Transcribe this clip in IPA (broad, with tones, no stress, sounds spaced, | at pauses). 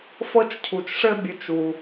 f ɤ˥ t͡ʃ cʰ u˨ t͡ʃ ʂ ɘ˥ bʲ ɵ˨ t͡ʃ u˩